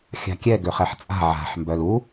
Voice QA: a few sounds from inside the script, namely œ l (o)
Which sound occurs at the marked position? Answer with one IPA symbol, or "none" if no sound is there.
u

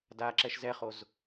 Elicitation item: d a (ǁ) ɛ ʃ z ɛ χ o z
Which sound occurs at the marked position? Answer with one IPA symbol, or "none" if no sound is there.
ǁ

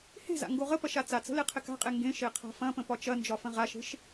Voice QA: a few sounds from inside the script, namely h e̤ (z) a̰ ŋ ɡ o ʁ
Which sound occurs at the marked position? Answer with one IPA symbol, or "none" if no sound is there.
z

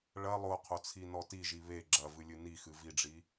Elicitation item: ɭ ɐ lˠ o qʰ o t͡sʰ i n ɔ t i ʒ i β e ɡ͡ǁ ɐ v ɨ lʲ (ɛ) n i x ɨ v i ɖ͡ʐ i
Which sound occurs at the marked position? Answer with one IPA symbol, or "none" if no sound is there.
ɨ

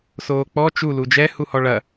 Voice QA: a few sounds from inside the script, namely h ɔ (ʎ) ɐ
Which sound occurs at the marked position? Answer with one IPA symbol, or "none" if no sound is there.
ɭ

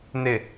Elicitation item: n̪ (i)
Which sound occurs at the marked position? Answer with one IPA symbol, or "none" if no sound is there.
ɪ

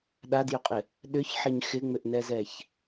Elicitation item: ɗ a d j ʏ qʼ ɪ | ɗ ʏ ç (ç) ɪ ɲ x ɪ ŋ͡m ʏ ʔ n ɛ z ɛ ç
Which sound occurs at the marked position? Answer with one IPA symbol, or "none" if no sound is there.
ħ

